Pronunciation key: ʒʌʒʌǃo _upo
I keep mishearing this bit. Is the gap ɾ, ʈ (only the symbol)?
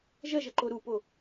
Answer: ɾ